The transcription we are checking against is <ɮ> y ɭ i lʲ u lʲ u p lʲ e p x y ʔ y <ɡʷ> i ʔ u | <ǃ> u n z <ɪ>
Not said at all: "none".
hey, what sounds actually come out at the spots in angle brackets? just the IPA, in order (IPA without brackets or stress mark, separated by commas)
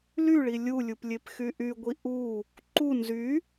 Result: l, ɡʷ, ǃ, y